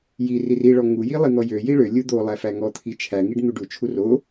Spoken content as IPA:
j i r i r i ɭ ɔ ŋ u j i lˠ i n̪ ɔ j ø j i ɭ ø lʲ u d̪ o lˠ æ f æ ŋ ɔ t̪ʰ i t͡ʃʰ æ ŋ i ɖ n̪ u ɖ u t͡ʃʰ u r o

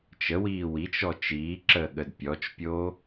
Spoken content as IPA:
t͡ʃ ə w iː w i t͡ʃ ɔ t͡ʃ iː ǁ əː ɠ ə d pʲ ɔ t͡ʃ pʲ oː

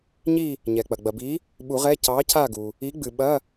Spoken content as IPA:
ɲ i˦˨ | ɲ ɛ˩ k͡p ɐ˩ ɡ͡b ɐ˩ b i˨˥ | ɓ u˨˩˦ ʁ ɛ˧˥˧ c ɑ˨˥ c a˦˨ ɡ u˩ | i˨˥ ɡ͡b ɨ˩ ɓ ɐ˧˥˧

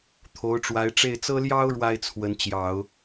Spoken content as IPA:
t̪ʰ o˧˥ ʊ̯ ʈ͡ʂ w a˧˥ ɪ̯ ʈ͡ʂ e˥˩ ɪ̯ t͡s ɤ˥ l j ɑ˥ ʊ̯ ɻ w a˥ ɪ̯ t͡sʰ w ə˧˥ n t͡ɕ j ɑ˨˩˦ ʊ̯

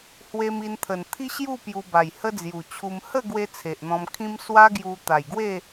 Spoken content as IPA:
h w e˧ m i˧ n t̪ʰ ə˨˩ n t̪ʰ i˦ ɕ j u˥˧ p j u˧ b a˨˩ j h ə˦ d͡z j u˨˩ t͡ɕʰ u˧ m h ə˥˧ ɡ w e˧ t͡sʰ e˨ ʔ n̪ ɔ̃˧ m kʰ ĩ˦ m s w a˦ ɡ j u˧ t̪ a˨˩ j ɡ w e˥˧

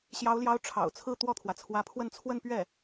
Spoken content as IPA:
ɕ j ɑ˧˥ ʊ̯ l j ɑ˧˥ ʊ̯ ʈ͡ʂʰ ɑ̰˨˩ ʊ̯ t͡sʰ ɹ̩˥˧ t̪ w ɔ˥˩ t̪ʰ w ä˩ t͡sʰ w ä˧˥ pʰ w ə˥˧ n t͡sʰ w ə˥˧ n p ɥ ɛ˥˩

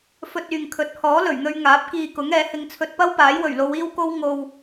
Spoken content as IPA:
f ɵ˧ t̚ yː˨ ŋ kʰ ɵ˨˥ t̚ h ɔː˨˥ l ɵ˨˩ ɥ n̪ ɵ˧ ɥ ŋ aː˨˥ p̚ k iː˧ k ʊ˨˥ ŋ ɛː˨˥ h ɪ˧ ŋ t͡sʰ ɵ˧ t̚ p ɐ˥ w p aː˨˥ j w ɵ˨˩ ɥ l o˨˧ w iː˥ w k o˥ w ŋ o˧ w

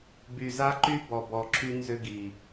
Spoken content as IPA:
b y˨ z a˦ ǃ y˦ b ɔ˨ b ɔ˨ ǁʰ y˦ n z ʏ˦ ɡ i˨

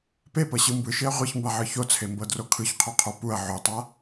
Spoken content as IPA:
p e p ɤ ɕ ɯ m b ɯ ʃ e ɐ̯ ʁʷ i ç m b a ʕ ɯ ç o t͡sʰ e m b ɤ d r o kʰ ɯ ç qʰ o qʰ o p u ɐ̯ ʕ o tˤ a

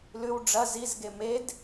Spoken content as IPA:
l ʉ w ɖ͡ʐ ɐ z i z ɡ e m e d

